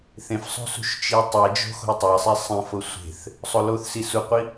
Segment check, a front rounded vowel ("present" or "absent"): absent